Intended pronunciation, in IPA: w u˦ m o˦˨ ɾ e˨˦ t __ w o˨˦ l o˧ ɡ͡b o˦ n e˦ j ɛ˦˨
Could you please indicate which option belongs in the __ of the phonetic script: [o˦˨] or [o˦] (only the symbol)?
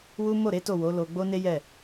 o˦˨